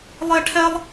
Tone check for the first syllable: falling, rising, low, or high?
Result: high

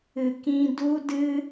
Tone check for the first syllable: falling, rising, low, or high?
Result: low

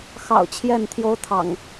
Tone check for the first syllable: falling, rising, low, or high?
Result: low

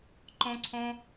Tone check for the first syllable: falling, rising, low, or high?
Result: high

